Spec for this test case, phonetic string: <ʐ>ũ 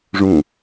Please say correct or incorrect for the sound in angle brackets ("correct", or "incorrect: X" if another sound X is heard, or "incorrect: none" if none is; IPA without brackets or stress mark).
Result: correct